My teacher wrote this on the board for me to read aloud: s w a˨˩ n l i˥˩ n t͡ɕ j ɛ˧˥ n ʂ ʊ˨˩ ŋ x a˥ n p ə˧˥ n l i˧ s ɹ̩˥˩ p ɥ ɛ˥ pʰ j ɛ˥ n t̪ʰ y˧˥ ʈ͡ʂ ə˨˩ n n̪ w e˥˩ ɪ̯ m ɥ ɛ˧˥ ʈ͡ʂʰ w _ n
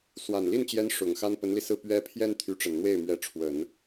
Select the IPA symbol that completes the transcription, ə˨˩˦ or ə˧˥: ə˨˩˦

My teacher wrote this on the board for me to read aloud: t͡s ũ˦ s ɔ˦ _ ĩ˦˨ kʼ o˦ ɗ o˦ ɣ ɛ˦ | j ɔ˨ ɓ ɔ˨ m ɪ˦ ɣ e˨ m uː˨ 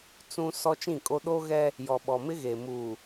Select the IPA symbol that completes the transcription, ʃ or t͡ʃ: t͡ʃ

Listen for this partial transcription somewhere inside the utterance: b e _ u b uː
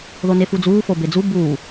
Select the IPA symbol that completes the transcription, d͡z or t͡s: d͡z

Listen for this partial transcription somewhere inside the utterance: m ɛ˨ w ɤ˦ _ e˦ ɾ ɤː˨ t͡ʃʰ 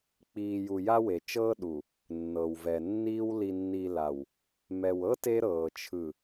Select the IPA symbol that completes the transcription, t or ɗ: t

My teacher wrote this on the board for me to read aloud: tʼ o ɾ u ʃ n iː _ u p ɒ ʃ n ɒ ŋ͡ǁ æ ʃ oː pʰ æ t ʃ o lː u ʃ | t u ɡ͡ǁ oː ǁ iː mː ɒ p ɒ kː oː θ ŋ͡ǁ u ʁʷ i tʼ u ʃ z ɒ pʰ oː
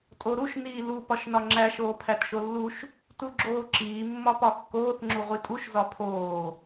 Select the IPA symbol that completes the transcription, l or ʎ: l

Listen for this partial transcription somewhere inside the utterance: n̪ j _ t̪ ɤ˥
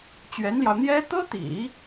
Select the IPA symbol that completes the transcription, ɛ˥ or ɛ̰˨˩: ɛ˥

